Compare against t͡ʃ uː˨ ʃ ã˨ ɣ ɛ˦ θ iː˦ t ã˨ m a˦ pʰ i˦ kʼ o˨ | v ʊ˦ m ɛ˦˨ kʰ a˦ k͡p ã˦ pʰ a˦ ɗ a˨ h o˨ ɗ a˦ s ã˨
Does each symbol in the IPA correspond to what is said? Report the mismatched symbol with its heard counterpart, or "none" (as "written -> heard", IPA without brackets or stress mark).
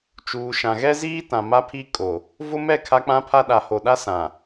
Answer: θ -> z